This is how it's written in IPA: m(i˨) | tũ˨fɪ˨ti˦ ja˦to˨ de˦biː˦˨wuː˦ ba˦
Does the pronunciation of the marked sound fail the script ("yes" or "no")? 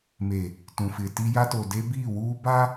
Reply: yes